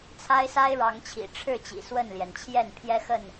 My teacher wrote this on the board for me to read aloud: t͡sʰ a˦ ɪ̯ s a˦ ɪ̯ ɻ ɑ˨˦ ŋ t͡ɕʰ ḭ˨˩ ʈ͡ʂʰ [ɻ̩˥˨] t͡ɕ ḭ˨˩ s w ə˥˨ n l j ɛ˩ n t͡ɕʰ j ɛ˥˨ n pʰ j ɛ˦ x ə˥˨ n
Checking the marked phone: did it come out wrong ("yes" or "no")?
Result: no